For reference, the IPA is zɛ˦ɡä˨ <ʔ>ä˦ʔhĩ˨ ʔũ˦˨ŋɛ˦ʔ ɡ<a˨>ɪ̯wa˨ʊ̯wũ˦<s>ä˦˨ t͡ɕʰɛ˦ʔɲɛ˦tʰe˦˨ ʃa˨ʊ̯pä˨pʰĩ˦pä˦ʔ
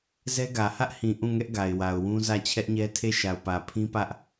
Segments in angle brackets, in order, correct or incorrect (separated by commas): incorrect, correct, incorrect